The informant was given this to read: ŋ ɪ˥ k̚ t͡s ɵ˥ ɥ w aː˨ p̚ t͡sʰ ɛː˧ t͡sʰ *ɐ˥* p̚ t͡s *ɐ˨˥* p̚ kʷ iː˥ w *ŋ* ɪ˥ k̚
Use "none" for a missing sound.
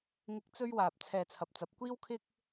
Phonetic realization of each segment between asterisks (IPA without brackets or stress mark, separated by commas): ɐ˨, ɐ˨˥, kʰ